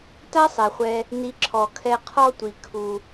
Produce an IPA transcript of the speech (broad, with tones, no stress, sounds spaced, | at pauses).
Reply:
t a˥ sˤ ɛ˩ χʷ ɛ˨ | n i˨ ǁʰ ɔ˩ kʰ ɛ˨ qʰ ɔ˦ tʷ i˩ kʰ u˩